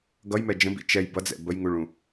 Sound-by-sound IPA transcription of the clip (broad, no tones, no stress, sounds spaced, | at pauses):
ɡ ʌ j m ɛ d͡ʒ ə̃ b ḭ t͡ʃ ɛ j b ʌ d͡z ɛ̰ b ə j ŋ u ɭ ũ